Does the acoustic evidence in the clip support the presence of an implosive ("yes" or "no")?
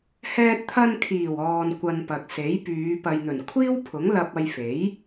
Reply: no